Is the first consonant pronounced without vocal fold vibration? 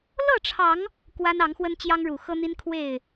no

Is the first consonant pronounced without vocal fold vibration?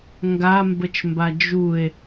no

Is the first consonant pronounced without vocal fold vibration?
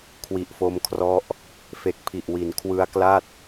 yes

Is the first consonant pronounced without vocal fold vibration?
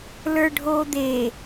no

